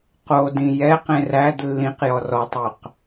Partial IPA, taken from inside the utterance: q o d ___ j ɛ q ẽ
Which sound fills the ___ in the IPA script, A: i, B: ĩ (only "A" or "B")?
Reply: B